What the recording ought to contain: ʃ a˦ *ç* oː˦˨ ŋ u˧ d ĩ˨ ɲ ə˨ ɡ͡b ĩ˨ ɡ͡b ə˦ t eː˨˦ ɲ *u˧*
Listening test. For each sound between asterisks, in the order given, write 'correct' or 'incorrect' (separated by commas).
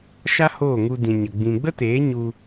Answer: incorrect, correct